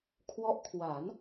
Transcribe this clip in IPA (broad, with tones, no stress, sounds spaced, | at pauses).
kʰ w ɔ˦˥ ʔ kʰ w a˩˦ n